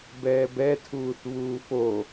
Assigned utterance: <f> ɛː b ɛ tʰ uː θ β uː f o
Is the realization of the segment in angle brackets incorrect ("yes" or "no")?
yes